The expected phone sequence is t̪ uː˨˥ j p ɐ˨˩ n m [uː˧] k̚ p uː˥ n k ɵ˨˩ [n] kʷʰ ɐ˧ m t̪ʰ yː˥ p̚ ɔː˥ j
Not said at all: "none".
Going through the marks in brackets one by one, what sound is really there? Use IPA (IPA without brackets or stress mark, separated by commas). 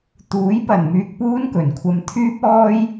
yː˧, n